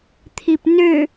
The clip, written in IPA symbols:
t̪ʰ i p n ø

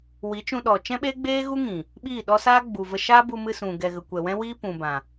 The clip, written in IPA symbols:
w i˨˦ t͡ʃ ũ˧ ɗ ɔ˨ t͡ʃ ɛ̃˦ ɓ eː˦ ɡ͡b eː˦ ɣ u˦ ŋ ĩ˨ | ɓ iː˦˨ ɗ ɔ˦ s aː˦ ɡ͡b u˨ v ə˧ ʃ aː˦ b u˧ m ɨ˧ s ũ˨ ɡ ɛ˨ ɣ ə˨ kʷ ɛ˨ w ɛ̃˦ w iː˦ p ũ˨ b ã˨

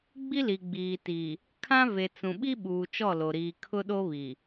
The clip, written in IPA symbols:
ɡ͡b i˦ l i˨ ɡ͡b iː˨ t i˨ | kʰ ã˦ v e˨ t͡s ũ˨ ɓ i˦ ɓ uː˨ t͡ʃ ɔ˦˨ l o˨ ɾ iː˨ kʰ ʊ˦ ɗ o˦ β i˨

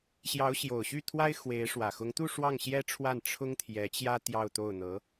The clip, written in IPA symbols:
ɕ j ɑ˧˥ ʊ̯ ɕ j o˨˩ ʊ̯ ɕ y˥˩ t̪ʰ w a˥ ɪ̯ x w e˧˥ ɪ̯ ʂ w ä˨˩ x ʊ˧˥ ŋ t̪ u˥˧ ʂ w ɑ˥˩ ŋ ɕ j ɛ˥ ʈ͡ʂʰ w a˥˩ n ʈ͡ʂʰ ʊ˥ ŋ t̪ʰ j ɛ˧˥ t͡ɕ j ä˥ t̪ j ɑ˥˧ ʊ̯ t̪ o˥˩ ʊ̯ n̪ ɤ˧˥

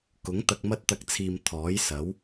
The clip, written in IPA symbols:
k ʊ˨˥ ŋ t̪ ɐ˧ k̚ m ɐ˥ t̚ t̪ ɐ˧ k̚ t͡sʰ iː˨ m t̪ʰ ɔː˨˥ j s ɐ˨˥ w

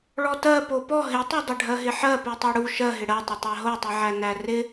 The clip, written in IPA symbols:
ɭ ɔ t ɜ p o p ɔ ɦ ɪ tˤ u dˤ ɪ ɖʱ ɜ ɦ ɪ ħ ɜ p u tˤ o ɽ u ʃ ɜ ɦ ɪ ɽ ɜ tˤ ɪ tˤ æ ɦ o tˤ i ʕ æ n æ r ɪ

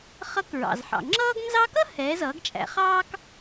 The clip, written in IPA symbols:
χ ʌ˧˥ k ɹ ɑ̰˩ z ħ ɑ̰˩ ŋ͡ǁ ʌː˥ ɡ n z ɑ˥ k ʌ˥ h ɛː˩˧ z ʌː˩˧ ɡ t͡ʃʼ æ̰˩˧ χ ɑː˥ k

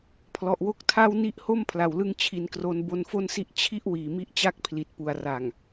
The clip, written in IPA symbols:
pʰ l ɔ˨˩ ʔ w o˦˥ k̚ tʰ a˥˩ w n i˦˥ ʔ h o˥˩ m pʰ l a˨˩ w l ɯ˥˩ ŋ t͡ɕʰ i˧ n k r o˦˥ n b o˧ n f o˥˩ n s i˥˩ ʔ t͡ɕʰ i˥˩ ʔ w iː˨˩ m i˥˩ ʔ t͡ɕ a˥˩ k̚ pʰ l i˨˩ t̚ p u˨˩ a̯ r a˨˩ ŋ

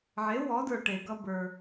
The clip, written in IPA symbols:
ʕ e˩˥ w ɔ˩˥ d ə˞˩ ʈ e˩ ɡ ʌ˧ b ə˞˩

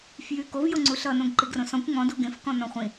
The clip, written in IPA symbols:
f j y k o v j o ŋ͡ǀ u ɬ ʌ n õ ɡ ǃ i ɡ r õ s ɔ̃ kʷ ŋ ɔ̃ d u ɡ ẽ f k ɔ̃ n ɔ̃ χʷ ĩ

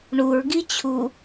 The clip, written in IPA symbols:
ɳ u ɹ ɡ i t͡ɕʰ u

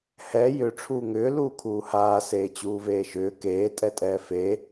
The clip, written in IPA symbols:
h ɛ j ʏ ʈ͡ʂʰ uː ŋ ʏː l uː kʰ uː h aː s eː t͡ɕ uː v eː ʃ ʏː k eː tʼ ɛ tʼ ɛː f e

